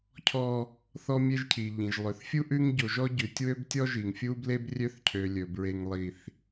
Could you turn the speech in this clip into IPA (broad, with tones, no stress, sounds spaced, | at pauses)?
cʰ ɔ˦ | θ ɔ˦ mʲ e˦ ʒ cʰ i˨ ʎ ĩ˨ ʒ lˠ ø˨ θ fʲ u˦ ʔ ʉ˦ ŋ ɟ o˨ ʒ ɔ˦ ɟ ʉ˨ tʲ w ø˦ b tʲ ɔ˦ ʒ i˨ ŋ fʲ u˦ b l e˦ b rʲ ø˦ θ cʰ ø˨ lʲ ɵ˨ b ɹ e˦ ŋ lˠ i˦ θ